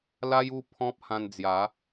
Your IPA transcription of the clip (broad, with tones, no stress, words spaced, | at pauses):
la˦ju˥˧ pʰɔ̃˦p̚hã˧nd͡zja˨˦